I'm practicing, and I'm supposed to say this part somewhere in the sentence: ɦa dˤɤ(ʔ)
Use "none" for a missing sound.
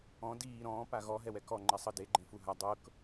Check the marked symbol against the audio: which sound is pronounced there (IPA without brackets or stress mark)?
k